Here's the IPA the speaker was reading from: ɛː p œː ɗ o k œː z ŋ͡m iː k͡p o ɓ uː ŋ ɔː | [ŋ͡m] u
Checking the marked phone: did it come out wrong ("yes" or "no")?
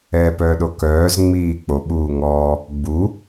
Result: yes